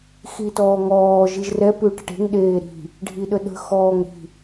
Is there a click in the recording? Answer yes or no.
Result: no